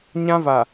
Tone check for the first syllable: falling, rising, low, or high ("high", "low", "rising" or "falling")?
high